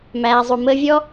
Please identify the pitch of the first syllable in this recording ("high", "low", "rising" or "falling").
low